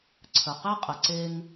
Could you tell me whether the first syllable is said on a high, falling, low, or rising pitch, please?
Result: low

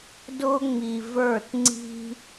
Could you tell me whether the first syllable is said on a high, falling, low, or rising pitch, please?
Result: high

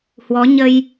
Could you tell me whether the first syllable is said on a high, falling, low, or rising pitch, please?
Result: rising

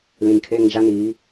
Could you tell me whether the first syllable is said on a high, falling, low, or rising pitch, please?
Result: low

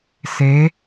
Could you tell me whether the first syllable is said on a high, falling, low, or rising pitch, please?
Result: rising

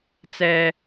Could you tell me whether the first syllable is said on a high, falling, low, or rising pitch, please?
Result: high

